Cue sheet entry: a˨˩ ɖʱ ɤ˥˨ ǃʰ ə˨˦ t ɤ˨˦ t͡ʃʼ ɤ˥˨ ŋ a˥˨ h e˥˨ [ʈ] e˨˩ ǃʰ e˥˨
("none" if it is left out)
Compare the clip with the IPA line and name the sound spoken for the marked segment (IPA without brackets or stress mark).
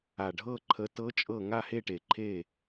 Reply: ʈ